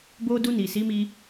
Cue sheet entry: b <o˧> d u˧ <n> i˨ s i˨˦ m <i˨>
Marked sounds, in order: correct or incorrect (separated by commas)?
correct, correct, incorrect